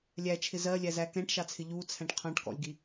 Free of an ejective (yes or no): yes